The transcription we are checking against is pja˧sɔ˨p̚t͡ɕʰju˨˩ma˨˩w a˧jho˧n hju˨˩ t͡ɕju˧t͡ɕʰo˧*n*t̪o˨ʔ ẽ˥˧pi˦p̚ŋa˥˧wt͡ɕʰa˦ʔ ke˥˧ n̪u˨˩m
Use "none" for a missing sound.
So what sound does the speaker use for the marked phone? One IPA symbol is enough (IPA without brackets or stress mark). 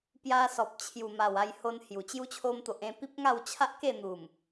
m